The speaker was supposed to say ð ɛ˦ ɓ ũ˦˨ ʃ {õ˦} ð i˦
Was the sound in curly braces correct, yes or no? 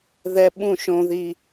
yes